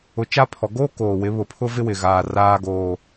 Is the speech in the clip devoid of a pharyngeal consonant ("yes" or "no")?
yes